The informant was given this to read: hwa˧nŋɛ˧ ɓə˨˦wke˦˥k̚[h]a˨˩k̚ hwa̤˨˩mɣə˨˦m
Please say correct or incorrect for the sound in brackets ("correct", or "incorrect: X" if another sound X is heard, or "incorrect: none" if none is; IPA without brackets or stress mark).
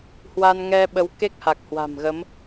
correct